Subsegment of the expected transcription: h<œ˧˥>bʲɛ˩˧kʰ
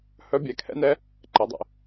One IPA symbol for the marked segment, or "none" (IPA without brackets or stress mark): œ˧˥